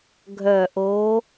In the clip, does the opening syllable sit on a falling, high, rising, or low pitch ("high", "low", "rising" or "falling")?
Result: low